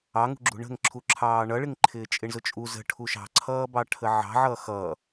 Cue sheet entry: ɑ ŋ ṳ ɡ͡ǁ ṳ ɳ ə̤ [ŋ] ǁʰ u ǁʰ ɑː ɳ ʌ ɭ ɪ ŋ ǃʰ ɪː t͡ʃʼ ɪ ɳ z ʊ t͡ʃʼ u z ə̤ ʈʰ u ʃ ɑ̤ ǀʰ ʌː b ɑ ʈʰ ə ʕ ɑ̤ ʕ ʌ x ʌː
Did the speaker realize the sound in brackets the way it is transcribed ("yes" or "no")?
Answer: yes